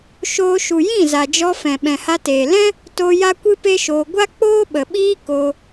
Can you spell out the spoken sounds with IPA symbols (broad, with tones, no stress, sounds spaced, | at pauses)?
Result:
ʃ oː˧ ʃ u˨ j ĩ˦˨ z a˨ d͡ʒ ɔ˧ f ɛ̃˨ ɓ ɛ̃˨ h a˧ t eː˨ l ɛ̃˦ | t o˧ j a˦ kʷ ɨ˦ p e˦ ʃ oː˧ ɡʷ a˦ k͡p oː˦ ɓ ə˨ ɓ iː˦ k o˧